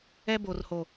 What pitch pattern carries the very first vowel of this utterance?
high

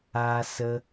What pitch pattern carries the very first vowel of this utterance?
high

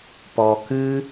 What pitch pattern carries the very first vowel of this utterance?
low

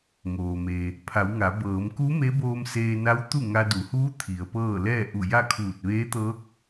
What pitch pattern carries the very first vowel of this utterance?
low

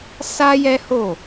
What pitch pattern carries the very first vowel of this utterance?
high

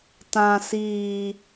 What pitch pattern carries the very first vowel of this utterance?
low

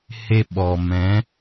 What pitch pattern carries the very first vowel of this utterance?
high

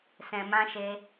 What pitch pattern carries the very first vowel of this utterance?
low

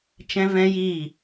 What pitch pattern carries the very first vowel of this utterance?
high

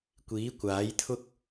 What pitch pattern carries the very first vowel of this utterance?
rising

